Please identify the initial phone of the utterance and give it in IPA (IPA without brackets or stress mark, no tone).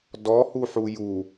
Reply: d